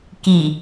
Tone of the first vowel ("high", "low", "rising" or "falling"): low